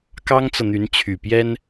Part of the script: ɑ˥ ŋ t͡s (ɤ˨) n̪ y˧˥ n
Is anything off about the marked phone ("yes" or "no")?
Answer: no